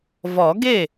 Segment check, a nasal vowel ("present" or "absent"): absent